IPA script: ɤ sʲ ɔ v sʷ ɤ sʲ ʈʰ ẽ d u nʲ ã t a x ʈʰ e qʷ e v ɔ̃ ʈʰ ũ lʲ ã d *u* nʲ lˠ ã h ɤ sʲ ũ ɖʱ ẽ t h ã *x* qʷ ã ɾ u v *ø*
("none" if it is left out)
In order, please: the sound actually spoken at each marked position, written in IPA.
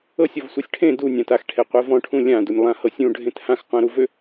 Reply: u, x, ø

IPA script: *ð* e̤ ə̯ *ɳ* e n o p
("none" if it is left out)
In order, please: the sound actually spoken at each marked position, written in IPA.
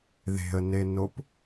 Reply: ð, n

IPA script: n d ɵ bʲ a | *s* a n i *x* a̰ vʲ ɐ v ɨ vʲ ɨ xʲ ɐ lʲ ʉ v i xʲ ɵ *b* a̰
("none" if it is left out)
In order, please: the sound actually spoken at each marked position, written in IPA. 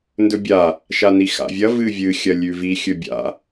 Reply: ʃ, x, bʲ

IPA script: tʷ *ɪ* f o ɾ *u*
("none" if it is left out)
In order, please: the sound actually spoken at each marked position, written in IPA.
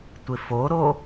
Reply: ɪ, o

